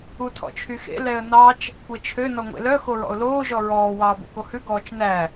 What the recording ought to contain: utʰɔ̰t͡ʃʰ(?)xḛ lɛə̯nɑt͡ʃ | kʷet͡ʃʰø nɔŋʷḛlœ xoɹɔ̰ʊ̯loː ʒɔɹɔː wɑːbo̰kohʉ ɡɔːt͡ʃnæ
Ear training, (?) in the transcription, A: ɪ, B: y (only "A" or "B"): B